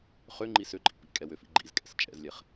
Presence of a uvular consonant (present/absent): present